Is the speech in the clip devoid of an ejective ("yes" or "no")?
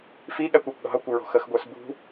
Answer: yes